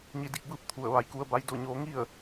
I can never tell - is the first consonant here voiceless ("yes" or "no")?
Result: no